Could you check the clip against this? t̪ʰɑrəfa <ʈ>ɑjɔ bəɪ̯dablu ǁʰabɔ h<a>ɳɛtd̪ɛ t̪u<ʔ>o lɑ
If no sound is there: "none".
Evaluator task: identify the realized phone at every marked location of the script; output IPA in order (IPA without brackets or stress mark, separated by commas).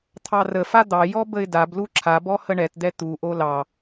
d̪, ə, ʔ